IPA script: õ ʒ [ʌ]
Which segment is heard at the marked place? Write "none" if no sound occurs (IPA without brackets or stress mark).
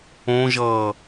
ʌː